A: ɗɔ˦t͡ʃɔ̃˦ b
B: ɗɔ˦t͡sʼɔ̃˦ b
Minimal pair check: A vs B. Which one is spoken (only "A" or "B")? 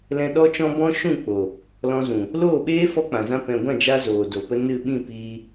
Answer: A